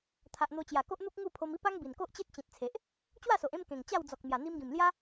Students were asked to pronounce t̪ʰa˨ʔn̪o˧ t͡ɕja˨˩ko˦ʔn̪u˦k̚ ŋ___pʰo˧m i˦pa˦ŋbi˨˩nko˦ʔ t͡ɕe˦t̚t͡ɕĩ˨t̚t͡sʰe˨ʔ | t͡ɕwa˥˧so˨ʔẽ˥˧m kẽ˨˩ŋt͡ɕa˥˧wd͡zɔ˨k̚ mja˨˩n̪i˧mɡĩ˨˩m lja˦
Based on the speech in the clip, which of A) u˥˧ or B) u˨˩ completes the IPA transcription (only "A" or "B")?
A